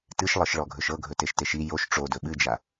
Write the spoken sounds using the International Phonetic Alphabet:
t ɨ ʃ lˠ ɤ ʃ ɭ ɔ ɡʱ ɵ ʃ ɤ ɡʱ ɵ t e ʃ t e ʃ i j o ʃ ʈ͡ʂ o d ɵ ɓ ɨ d͡ʒ a

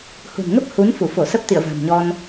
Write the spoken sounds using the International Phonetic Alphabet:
h ṳ˨˩ n ŋ ə˦˥ p̚ h u˨˦ n f u˧˩ f o˧˩ s ə˦˥ p̚ t̪ ḭ˧˨ ə̯ v a̤˨˩ m ɲ ɔ˧ n

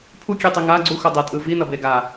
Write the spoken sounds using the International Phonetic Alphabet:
pʰ u kʲ e tˤ i ŋ a ɡ͡ǀ u x o dˤ ɛ tʼ ɯ v i n ʌ b e ɡ a

